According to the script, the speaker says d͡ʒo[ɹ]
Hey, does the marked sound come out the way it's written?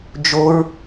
yes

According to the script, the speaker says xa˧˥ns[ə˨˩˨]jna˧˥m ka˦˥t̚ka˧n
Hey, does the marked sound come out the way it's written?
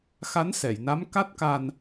no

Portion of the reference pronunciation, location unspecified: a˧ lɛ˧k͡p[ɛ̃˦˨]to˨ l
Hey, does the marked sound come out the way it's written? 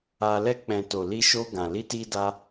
no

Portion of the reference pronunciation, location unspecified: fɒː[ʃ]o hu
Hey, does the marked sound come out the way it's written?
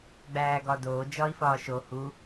yes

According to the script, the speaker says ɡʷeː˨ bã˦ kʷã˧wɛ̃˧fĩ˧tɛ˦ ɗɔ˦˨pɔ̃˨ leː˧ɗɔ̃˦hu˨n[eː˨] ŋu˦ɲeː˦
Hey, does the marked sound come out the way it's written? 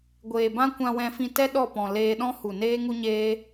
no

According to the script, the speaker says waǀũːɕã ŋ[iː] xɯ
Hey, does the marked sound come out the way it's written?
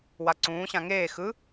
no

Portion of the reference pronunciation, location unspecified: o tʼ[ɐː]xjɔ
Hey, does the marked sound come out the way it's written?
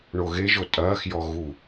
yes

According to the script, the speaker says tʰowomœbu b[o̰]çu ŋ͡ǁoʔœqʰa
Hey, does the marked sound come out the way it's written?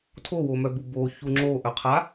no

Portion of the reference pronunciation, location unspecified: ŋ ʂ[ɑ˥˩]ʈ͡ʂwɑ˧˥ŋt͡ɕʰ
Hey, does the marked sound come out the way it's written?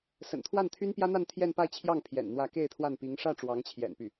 no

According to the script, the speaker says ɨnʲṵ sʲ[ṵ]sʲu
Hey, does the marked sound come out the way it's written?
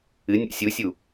no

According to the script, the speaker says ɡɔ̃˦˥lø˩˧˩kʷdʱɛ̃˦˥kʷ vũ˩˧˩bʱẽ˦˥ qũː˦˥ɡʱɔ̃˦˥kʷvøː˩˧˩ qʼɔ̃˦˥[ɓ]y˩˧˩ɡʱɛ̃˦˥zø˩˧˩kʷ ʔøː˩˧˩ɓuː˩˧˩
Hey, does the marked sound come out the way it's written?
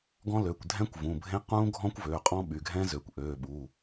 yes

